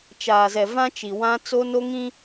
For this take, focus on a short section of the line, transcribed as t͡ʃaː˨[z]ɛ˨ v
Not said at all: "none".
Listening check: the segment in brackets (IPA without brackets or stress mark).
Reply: z